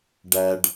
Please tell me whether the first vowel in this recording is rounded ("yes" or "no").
no